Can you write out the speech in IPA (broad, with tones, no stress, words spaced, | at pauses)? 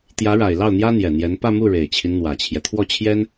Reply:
t̪jä˧˥ɻa˨˩ɪ̯ lɑ˥˩ʊ̯n̪jä˥ n̪jɛ˨˩n̪jɛ˧˥n pä˥˧mu˥˩ ɻe˨˩ɪ̯t͡ɕʰi˦n n̪wä˨˩t͡ɕʰjɛ˦ t̪ʰwɔ˥˩t͡ɕʰjɛ˥n